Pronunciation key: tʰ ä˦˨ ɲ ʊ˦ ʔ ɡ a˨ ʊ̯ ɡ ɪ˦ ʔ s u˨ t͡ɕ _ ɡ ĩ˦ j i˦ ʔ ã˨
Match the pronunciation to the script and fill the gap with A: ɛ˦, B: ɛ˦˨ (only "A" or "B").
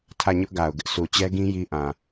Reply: A